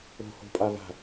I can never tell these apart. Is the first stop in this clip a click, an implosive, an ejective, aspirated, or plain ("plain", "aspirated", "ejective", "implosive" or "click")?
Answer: ejective